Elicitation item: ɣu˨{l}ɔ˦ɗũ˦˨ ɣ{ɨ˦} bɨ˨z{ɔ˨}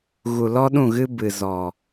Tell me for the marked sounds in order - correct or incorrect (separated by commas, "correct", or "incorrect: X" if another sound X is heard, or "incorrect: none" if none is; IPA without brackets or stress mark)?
correct, correct, correct